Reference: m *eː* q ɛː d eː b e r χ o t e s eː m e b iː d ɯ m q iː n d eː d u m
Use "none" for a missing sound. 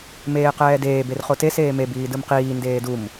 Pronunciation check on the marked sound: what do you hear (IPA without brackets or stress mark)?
eː